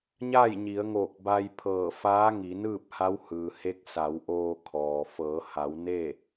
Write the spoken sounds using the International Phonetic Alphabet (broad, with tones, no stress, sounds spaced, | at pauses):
ɲ aː˥˨ j ɲ i˩˧ ə̯ ŋ oː˧˩ k̚ b a˧ j pʰ ɤː˧˩ f aː˧˥ ŋ i˩˧ n ɯː˥˨ p̚ h a˧˥ w h ɯː˩ h e˧˥ k̚ s a˩˧ w ʔ oː˧ kʰ ɔː˩ f ɤː˩˧ h a˩˧ w n e˥˨